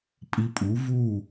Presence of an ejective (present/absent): present